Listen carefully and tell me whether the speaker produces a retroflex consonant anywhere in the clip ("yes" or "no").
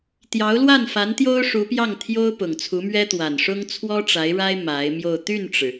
yes